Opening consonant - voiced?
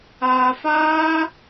no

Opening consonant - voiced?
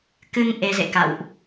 no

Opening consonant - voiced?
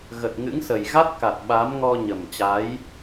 yes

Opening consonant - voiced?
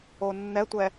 yes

